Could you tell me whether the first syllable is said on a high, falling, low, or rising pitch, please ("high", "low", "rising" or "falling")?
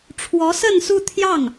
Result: rising